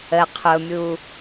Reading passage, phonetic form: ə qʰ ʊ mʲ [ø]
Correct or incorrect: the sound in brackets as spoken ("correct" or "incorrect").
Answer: incorrect